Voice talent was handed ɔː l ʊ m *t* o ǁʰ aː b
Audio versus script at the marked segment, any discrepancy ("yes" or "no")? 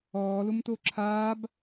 no